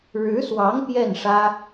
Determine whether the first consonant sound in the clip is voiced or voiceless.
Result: voiced